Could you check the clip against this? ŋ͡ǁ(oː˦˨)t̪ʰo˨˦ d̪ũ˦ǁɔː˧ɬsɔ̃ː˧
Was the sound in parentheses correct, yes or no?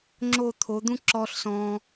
no